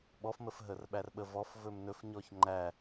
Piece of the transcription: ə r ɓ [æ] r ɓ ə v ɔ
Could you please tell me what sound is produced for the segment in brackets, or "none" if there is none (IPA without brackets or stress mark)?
æ